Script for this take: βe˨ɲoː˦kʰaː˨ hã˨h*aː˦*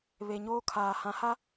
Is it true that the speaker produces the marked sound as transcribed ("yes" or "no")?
no